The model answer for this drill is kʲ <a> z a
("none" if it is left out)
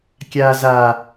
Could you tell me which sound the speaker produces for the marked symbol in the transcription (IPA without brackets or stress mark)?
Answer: a